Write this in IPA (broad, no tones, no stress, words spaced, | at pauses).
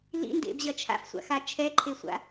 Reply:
lḭndḛbʑɐ t͡ʃʰa̰fsʷa̰xa t͡ʃʰɛǃʰesʷa̰